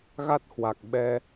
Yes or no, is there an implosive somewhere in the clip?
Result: yes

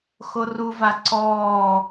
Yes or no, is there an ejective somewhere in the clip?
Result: no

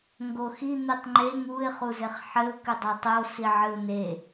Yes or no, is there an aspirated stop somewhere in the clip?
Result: no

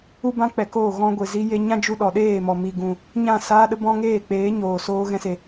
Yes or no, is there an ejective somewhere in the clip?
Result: no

